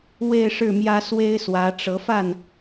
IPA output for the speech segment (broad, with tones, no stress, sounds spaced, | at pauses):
w e˥˧ ɪ̯ ʂ ɻ̩˥˩ m j ä˥ s w e˥ ɪ̯ s w ä˧˥ ʈ͡ʂ ɤ˧˥ f a˥˩ n